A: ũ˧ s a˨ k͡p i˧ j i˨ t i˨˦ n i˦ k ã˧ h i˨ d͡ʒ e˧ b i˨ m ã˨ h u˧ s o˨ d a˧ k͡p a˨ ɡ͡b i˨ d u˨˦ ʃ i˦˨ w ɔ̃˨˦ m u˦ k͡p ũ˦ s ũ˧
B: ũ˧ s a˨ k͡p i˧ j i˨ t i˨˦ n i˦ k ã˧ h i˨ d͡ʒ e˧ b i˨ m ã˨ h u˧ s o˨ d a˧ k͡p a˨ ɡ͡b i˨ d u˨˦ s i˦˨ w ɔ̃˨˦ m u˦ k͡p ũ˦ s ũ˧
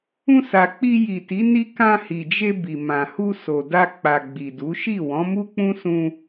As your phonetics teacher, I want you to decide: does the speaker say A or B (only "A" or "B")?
A